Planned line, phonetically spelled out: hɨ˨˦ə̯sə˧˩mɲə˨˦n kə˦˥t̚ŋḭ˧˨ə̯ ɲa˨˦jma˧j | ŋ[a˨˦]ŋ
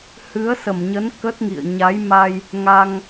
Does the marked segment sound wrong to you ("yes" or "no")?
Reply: yes